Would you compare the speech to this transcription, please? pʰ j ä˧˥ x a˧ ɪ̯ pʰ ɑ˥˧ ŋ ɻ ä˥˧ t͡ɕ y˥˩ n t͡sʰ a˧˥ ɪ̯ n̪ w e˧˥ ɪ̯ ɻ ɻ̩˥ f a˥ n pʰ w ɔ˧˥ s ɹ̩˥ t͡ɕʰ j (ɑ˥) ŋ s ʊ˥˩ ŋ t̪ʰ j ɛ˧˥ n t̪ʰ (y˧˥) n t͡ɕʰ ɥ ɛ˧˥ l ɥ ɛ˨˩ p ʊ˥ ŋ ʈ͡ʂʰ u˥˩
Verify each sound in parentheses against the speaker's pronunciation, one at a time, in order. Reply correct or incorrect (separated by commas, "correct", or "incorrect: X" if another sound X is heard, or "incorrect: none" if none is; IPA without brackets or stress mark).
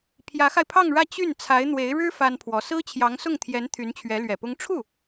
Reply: incorrect: ɑ˧˥, correct